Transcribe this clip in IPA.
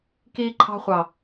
k iː˦ ǃʰ ɑ̤˦ χʷ ɑ˨

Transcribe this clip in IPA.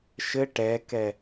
ʃ ɘ ʈ ɛ k ɛ

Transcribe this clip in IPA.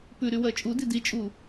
p ʉ ɾ y w ɜ t͡ʃʼ u d i d i t͡ʃʼ u

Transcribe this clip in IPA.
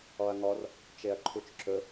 ɔ ɐ̯ ŋ ɔ r | t͡ʃ e ɐ̯ ǃʰ u t͡ʃ ǁ ɵ

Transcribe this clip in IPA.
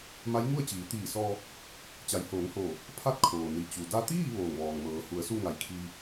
m a˧˥ j ŋ u˥˨ ə̯ t͡ɕ iː˩˧ t̪ iː˧˩ s ɔː˧ | t͡ɕ a˩˧ j h oː˩˧ ŋ h oː˧˩ | pʰ a˥˨ t̚ kʰ oː˩ n i˩ t͡ɕ u˩ d a˧ t̪ iː˥˨ ʋ oː˧˩ ŋ ʋ ɔː˩ ŋ m ɤː˩˧ h u˩˧ ə̯ s u˥˨ ŋ a˧˩ j kʰ iː˧

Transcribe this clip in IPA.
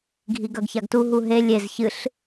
ɡʱ i ɡ ɐ ɡ ç a ɡ t u ɦ u ɦ e lʲ e z ç ɨ ɬ

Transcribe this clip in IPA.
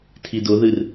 tʰ i d ʊ ð ɨ r

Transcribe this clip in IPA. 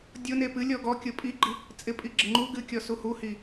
dʲ ʊ n e p ɨ lʲ ɔ ɡ ɔ kʲ ʊ pʼ i ɡ͡ǃ i | t͡sʼ ɪ pʼ i ɡ͡ǁ ɪ ŋ͡ǃ u ɡ ɨ kʲ ɔ s u h u h i

